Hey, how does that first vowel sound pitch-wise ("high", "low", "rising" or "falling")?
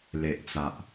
low